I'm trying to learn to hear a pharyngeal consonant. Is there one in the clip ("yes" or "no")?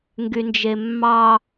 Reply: no